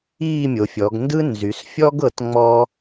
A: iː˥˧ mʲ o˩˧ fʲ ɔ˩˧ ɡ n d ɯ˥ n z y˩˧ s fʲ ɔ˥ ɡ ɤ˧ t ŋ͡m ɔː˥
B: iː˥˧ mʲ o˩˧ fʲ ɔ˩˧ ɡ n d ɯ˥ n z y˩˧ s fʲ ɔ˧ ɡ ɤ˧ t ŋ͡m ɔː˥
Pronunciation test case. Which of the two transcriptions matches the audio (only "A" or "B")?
A